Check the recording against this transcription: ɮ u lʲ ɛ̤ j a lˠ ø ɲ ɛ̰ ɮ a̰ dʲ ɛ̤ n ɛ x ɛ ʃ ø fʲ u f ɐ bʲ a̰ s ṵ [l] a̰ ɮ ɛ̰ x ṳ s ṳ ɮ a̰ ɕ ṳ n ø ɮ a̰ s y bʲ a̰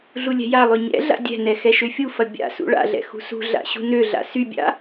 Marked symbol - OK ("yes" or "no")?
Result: no